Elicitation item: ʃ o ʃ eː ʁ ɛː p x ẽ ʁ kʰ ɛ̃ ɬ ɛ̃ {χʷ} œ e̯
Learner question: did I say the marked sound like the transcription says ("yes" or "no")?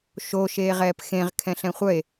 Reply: yes